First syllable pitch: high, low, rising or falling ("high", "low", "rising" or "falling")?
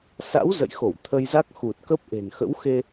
rising